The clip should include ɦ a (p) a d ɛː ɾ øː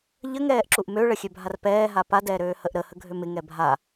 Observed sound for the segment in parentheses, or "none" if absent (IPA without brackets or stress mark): p